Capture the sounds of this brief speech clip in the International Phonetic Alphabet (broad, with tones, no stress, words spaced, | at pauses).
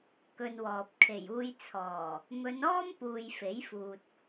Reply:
kɵ˧nwɔː˨p̚ kʰe˨˩juː˧j t͡sʰɔː˨˩ | mɵ˨˧nɔː˥mpuː˨j fe˨˥jfuː˨t̚